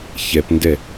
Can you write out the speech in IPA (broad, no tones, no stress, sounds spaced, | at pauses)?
ç ɛ p n d ɛ